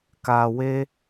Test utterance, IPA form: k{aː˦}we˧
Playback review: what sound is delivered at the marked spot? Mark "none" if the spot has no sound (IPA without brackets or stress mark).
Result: aː˨